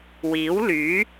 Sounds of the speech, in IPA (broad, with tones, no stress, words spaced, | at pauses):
wiː˨˥wlyː˨˥